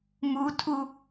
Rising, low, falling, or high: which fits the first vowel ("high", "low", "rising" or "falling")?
high